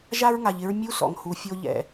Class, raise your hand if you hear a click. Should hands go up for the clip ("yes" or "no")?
no